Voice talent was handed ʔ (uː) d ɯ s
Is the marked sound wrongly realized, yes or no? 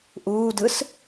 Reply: no